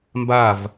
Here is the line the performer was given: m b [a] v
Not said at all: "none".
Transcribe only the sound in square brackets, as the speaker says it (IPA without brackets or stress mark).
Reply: a